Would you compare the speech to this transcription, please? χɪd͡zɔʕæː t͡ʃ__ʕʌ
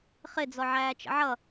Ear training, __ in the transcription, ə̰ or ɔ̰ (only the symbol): ə̰